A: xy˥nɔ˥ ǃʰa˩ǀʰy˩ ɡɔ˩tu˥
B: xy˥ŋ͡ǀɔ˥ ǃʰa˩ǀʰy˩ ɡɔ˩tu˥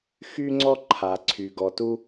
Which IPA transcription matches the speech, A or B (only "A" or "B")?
B